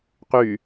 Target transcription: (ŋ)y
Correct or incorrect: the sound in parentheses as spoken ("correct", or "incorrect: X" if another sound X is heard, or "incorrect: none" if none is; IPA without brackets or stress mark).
incorrect: q